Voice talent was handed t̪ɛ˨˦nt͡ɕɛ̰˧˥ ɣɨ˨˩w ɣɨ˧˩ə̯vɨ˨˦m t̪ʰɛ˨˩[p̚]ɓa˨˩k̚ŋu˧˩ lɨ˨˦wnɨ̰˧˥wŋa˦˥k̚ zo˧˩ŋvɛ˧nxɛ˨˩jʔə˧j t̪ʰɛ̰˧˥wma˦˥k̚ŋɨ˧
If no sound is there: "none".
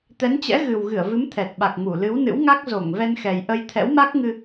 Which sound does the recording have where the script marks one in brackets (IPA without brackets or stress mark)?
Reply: t̚